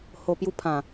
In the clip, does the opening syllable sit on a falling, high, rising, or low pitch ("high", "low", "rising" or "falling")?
low